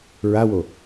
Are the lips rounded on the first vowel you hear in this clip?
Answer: no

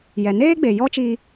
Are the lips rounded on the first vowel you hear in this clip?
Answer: no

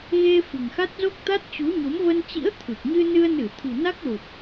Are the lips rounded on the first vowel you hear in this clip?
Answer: no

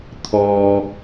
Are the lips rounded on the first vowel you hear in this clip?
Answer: yes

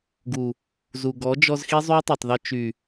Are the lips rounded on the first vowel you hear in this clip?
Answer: yes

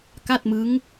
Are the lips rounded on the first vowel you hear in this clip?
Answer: no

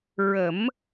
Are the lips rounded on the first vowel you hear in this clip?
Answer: no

